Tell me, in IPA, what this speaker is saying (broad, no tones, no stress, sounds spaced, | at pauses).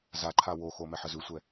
z a ǃʰ a w o x o m ɛ ħ ə z ʉ sʷ ɛ